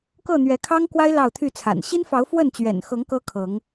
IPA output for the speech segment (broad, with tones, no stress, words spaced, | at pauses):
kɤ˥˨n̪ɥɛ˨˦kʰɑ˦ŋkwa˦ɪ̯ lɑ˥˨ʊ̯t̪ʰy˥˨t͡sʰa̰˨˩n ɕi˦nfɑ˨˦ʊ̯ fwə˥˨nt͡ɕɥɛ̰˨˩nxɤ˨˦ŋ kɤ˦kʰɤ˨˦ŋ